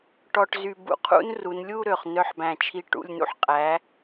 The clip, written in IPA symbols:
ʈ ɔ˧ ʈ z y˧ b ṵ˧ qʰ ṵ˥ n r u˩˧ n lʲ u˥˧ ɾ ø˧˩ χ n œ˧ ħ b æ̃˧˩ t͡ʃʰ i˧ ʈ ṵ˧˩ lʲ n ṵ˧ ħ qʼ æ˩˧

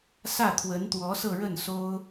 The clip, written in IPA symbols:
s ä˥˩ t̪ʰ w ə˧˥ n t̪ w ɔ˧˥ s ɤ˥˧ ɻ ə˥˩ n s o˥ ʊ̯

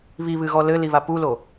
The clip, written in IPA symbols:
β i β ɨ ɣ ɔ l ɘ l i β a p u l o

